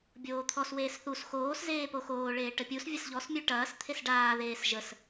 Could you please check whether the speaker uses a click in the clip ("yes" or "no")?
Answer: no